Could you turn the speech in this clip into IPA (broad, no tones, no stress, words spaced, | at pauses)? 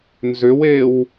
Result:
nzʏwew